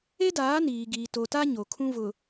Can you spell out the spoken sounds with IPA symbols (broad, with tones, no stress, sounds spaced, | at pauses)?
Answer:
e˦ d aː˨˦ n iː˨ ɡ iː˨ t o˨ t a˦ ɲ o˨ kʰ ũ˦ v ʊ˨